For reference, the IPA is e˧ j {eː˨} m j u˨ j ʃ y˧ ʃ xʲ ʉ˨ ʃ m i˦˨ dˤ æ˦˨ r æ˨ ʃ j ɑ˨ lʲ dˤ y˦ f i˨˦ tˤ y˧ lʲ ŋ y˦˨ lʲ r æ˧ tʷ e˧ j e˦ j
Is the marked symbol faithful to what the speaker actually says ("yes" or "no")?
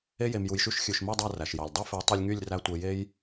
no